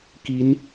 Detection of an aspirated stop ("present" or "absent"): absent